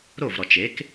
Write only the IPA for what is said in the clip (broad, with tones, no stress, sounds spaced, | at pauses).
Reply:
ɾ o˥˩ v ɾ ɔ˩ t͡ʃ e˩˥ k